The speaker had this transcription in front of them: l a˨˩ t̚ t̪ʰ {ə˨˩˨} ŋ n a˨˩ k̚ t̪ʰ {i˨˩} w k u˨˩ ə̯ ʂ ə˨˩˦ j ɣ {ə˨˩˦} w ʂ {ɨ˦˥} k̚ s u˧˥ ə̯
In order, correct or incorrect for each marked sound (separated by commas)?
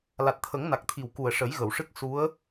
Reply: incorrect, correct, incorrect, correct